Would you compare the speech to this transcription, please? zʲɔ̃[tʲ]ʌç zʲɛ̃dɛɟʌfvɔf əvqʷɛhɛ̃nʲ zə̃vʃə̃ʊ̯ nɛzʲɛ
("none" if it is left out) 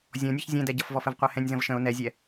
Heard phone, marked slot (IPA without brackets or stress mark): nʲ